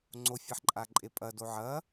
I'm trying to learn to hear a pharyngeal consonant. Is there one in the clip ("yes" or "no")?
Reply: yes